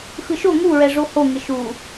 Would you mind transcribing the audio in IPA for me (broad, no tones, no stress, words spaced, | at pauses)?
xɯʃo ŋu ɹɛʐoho ŋɪʃu